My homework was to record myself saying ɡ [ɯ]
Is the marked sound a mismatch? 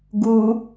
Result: yes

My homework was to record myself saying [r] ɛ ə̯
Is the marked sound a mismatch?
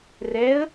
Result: no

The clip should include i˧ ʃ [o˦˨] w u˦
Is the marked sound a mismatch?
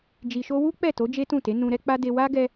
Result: yes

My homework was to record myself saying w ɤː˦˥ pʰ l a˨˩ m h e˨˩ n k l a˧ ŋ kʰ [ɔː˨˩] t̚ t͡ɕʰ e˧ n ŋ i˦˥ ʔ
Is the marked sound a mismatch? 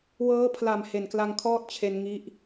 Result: yes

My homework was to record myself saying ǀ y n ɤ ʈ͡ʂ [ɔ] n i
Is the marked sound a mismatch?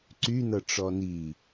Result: no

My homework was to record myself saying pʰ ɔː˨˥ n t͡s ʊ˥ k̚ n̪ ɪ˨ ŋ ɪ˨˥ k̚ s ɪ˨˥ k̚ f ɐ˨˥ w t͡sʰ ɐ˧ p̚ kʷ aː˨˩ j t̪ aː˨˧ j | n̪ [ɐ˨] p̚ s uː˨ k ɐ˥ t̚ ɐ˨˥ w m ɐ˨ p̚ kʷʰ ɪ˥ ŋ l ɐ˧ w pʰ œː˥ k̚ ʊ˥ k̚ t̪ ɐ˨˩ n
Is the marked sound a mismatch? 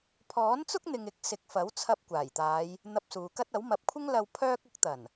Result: yes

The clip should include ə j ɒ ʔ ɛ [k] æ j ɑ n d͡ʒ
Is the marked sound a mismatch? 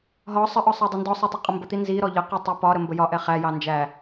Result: yes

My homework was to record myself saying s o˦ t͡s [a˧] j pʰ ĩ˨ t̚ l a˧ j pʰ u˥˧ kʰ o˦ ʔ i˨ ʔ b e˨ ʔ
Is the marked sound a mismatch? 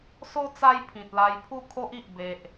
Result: yes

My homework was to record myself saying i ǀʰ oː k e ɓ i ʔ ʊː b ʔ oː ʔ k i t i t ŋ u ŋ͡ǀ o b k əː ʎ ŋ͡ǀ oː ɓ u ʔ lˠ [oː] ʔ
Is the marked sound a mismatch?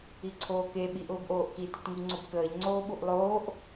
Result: no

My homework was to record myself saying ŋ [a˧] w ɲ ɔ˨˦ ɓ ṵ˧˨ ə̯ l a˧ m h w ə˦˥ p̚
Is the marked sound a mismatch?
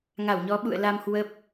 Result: yes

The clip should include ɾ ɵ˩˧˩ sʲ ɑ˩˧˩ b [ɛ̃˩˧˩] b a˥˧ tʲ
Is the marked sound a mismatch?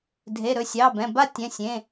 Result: no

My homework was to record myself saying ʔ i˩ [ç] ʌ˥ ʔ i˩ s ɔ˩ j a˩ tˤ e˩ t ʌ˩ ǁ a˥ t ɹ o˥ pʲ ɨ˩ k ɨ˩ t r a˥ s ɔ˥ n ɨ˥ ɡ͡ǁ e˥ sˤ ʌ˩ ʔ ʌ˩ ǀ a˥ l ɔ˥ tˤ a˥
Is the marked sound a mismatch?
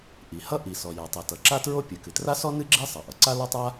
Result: yes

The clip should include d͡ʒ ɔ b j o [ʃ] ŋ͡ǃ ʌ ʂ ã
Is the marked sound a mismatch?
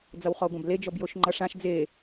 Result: no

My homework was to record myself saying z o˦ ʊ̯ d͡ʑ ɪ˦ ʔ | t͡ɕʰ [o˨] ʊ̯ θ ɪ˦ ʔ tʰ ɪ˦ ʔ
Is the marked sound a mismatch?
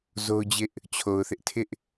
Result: no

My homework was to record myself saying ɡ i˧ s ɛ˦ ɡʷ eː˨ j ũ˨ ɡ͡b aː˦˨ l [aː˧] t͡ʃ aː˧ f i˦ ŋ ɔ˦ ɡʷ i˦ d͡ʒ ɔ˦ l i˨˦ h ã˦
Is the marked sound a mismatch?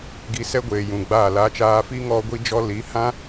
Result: no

